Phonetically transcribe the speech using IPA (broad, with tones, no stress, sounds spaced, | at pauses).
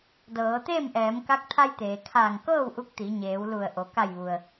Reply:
d ɤː˩˧ t̪ eː˥˨ m ʔ ɛː˩˧ m k a˧˥ k̚ t̪ʰ a˧ j t̪ eː˩ kʰ aː˧˩ ŋ k ɤː˥˨ w ʔ u˧˥ k̚ t̪ i˩˧ ɲ eː˩˧ w l u˧˩ ə̯ ʔ o˩ k a˧˩ j ʋ u˩ ə̯